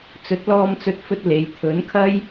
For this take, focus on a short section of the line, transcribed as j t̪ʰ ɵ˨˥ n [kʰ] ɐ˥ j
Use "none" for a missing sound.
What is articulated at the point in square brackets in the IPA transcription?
kʰ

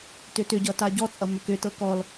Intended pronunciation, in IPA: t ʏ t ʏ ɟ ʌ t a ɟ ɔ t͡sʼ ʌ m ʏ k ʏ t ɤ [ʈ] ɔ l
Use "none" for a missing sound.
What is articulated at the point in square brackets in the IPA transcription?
k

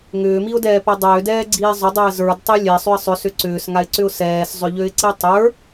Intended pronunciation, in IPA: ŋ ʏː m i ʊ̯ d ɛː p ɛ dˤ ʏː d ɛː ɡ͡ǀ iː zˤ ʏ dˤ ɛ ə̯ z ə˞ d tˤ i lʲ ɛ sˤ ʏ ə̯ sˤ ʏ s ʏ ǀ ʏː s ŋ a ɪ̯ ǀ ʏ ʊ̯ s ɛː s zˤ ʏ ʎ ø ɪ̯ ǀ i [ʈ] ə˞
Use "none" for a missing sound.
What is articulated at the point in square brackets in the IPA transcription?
tˤ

